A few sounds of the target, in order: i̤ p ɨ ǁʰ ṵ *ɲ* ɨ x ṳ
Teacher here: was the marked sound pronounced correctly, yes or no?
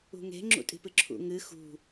no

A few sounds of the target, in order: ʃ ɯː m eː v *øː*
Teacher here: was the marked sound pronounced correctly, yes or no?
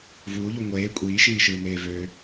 yes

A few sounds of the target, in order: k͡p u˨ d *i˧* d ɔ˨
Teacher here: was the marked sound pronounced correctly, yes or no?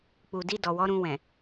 yes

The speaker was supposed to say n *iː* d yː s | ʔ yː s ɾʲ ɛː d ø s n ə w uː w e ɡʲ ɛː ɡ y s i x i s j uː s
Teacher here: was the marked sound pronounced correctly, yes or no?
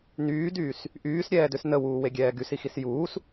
no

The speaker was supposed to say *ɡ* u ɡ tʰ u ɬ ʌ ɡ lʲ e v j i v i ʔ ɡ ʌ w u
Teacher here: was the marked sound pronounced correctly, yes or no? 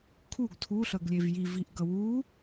no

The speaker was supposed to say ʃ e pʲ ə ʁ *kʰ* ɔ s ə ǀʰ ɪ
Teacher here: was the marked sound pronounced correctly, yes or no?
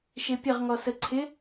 no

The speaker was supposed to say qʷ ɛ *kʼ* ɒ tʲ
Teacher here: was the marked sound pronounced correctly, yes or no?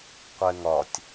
no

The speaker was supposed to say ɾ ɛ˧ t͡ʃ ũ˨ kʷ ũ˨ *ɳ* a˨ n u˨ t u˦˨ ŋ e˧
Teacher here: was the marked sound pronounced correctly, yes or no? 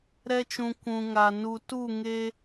no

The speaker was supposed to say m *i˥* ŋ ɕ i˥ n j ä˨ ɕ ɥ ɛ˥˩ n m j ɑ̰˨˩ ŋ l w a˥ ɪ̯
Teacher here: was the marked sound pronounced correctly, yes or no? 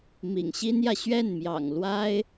no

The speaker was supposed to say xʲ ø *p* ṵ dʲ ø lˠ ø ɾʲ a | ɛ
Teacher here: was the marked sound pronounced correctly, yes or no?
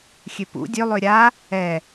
yes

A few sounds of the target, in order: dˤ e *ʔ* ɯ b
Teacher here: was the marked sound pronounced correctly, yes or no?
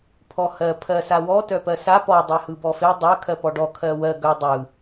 no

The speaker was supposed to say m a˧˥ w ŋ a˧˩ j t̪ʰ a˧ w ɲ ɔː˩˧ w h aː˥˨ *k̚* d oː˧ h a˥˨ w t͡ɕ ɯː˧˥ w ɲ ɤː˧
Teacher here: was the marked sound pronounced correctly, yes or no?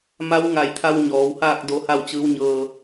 yes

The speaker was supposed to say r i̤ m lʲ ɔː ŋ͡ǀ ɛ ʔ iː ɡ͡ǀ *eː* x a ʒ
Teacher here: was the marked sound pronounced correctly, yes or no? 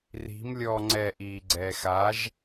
no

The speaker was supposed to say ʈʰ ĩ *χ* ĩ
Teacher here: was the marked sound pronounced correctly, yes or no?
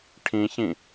no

